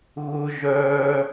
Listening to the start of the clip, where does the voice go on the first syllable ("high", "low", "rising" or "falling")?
high